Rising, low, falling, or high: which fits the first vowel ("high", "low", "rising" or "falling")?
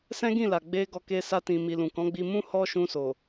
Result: high